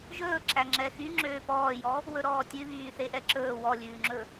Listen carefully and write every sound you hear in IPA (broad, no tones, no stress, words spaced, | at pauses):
ʒɵː ǁæŋ͡ǁɛxy ŋ͡ǁøːpɔːjɔ | wɵɾɔːtʲʉ βyːθeʔɛǁɵː wɔlʲʉːŋ͡ǁɵ